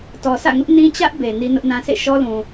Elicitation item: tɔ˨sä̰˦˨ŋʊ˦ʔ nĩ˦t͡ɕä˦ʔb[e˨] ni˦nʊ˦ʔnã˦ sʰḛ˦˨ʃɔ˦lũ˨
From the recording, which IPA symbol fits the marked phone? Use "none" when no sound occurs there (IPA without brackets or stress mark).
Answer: e˨